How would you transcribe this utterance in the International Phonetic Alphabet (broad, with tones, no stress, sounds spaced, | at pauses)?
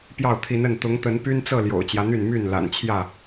p j ɑ˥˨ ʊ̯ t̪ʰ i˨˦ n ə˥˨ n t̪ ʊ˨˦ ŋ t̪ ə˨˦ n p y˦ n t͡s ɤ˥˨ l j o̰˨˩ ʊ̯ t͡ɕ j ä˦ n̪ y˥˨ n m y˥˨ n l a̰˨˩ n t͡ɕʰ j ä˥˨